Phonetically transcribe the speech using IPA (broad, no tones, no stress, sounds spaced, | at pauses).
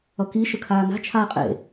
ʌ k i ʃ ə kʰ aː n a̤ t͡ʃʰ aː qʼ ḛ